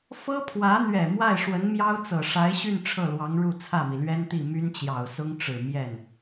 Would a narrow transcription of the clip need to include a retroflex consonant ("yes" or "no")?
yes